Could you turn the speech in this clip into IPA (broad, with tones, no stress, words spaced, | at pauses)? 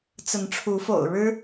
t͡sə˨˦nʈ͡ʂʰu˨˦fo̰˨˩ʊ̯ ɻɻ̩˦